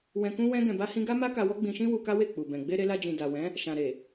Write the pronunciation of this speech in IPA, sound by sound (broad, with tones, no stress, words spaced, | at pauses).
wɛ̃˧kũ˦wɛ̃˦ ɡɛ̃˧ba˦hĩ˦ ɡa˦ma˦ka˧ wɔ˦ɡ͡bĩ˧ʃĩ˦ wu˧ka˦we˦˨ k͡pu˨bɛ̃˨ ɡ͡be˧ɾe˧la˧d͡ʒĩ˨ da˨wɛ̃˨˦ | ʃã˨ ɾe˨